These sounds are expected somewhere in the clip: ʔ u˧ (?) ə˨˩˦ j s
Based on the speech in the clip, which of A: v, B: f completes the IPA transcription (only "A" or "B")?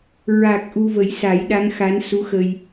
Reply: A